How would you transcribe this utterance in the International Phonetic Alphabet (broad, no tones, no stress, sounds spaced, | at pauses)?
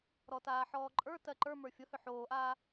ɾ ɔ t aː ħ ɔː ǃʼ ə˞ t ɜ ǃ ə˞ m ə˞ fʲ ʊ h ʏ ħ oː ʔ aː